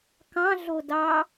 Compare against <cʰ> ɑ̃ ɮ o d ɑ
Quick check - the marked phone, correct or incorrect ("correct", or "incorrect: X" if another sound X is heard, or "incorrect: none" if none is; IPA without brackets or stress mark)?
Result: incorrect: k